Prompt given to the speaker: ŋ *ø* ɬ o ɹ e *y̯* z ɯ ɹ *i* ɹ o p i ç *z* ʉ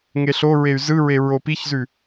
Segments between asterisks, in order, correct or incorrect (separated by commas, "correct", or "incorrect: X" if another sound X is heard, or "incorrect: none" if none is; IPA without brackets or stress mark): incorrect: e, correct, incorrect: e, correct